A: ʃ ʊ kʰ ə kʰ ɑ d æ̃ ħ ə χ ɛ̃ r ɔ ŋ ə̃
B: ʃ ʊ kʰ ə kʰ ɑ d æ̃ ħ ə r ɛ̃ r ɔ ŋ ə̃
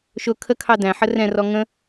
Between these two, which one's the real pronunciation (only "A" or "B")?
B